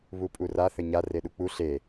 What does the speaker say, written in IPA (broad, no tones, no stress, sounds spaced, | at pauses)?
β u pʼ u r a θ ɘ ɲ a r e ɗ u k͡p u ɬ e